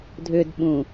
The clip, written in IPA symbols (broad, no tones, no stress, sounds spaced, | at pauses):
dʱ ʏ d ɓ ũ